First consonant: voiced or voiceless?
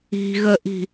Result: voiced